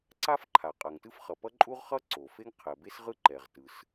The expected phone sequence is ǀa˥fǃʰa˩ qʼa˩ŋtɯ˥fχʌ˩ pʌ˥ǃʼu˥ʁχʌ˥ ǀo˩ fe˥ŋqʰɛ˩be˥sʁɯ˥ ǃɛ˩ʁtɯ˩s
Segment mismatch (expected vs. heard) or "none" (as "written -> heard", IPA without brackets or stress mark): none